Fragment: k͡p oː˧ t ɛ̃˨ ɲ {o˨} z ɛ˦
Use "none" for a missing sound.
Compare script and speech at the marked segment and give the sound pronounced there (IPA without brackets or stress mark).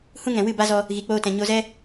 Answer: o˧